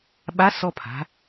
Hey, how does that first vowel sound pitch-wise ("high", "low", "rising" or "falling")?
rising